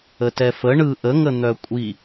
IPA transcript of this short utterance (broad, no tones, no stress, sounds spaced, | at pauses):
ə t ɛ f ə ɳ ɯ ʔ ə ŋ ə n̪ œ kʷʼ i